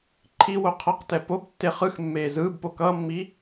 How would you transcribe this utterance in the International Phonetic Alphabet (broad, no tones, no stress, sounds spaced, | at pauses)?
ǃʰ i w o qʰ ʌ q t ɛ p o b tː e χ ɯ x mː eː z ɯː b p o k ʌː mː iː